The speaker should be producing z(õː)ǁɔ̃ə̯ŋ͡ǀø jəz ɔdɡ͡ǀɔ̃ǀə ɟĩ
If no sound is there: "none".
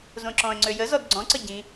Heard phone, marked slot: õ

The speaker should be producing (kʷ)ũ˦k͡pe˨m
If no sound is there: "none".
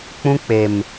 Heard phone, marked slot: k͡p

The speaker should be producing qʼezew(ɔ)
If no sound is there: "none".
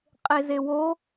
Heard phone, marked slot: o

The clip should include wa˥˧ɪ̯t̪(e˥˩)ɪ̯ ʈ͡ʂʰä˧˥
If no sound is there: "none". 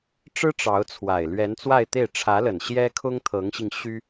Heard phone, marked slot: e˥˩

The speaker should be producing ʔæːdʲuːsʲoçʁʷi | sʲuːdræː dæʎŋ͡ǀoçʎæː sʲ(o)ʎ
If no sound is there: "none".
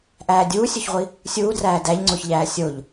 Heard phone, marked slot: o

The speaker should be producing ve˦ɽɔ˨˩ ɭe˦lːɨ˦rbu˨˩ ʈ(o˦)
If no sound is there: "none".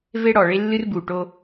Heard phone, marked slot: o˦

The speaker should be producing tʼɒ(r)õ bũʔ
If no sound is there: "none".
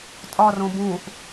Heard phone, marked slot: r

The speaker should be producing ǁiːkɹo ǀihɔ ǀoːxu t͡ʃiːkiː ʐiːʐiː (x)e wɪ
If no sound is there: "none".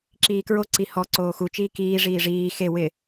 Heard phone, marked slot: x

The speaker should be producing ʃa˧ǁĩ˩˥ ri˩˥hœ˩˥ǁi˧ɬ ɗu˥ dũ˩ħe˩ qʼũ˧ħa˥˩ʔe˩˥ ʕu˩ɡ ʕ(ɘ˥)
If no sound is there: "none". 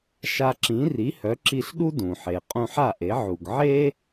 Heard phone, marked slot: e˥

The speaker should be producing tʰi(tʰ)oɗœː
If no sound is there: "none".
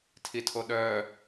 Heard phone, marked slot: tʰ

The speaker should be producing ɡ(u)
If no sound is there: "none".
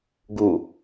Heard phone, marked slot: u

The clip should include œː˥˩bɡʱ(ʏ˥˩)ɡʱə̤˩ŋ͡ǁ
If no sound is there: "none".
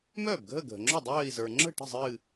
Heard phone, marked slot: ə˥˩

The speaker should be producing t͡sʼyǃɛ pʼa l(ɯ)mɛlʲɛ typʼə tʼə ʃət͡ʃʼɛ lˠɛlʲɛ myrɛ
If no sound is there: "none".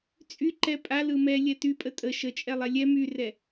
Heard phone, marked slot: ɯ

